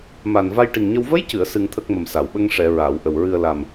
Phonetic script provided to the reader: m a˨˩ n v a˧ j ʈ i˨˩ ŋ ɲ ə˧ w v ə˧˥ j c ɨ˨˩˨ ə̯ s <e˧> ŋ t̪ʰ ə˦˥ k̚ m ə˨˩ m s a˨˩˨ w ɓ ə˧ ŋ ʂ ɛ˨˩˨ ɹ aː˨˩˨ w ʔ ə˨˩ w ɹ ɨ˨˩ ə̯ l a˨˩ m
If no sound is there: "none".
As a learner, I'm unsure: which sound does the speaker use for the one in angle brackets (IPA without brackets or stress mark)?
ɨ˧